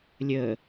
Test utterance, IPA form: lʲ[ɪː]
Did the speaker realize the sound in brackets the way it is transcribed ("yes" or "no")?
no